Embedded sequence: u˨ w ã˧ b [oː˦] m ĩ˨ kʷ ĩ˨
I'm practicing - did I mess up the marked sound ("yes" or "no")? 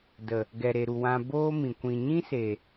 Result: no